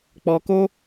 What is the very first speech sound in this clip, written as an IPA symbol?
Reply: k͡p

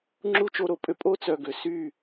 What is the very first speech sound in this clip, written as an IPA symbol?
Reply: ŋ͡ǁ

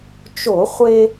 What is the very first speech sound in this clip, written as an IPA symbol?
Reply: t͡ʃ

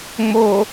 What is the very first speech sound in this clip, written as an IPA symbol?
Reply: ŋ͡m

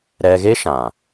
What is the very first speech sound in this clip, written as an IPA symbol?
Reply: ɾ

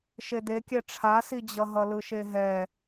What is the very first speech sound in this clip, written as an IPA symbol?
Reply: ʃ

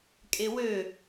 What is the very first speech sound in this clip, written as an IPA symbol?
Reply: kʼ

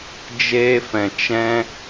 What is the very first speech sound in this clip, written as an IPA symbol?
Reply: d͡ʒ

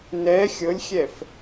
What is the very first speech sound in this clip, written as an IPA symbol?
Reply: n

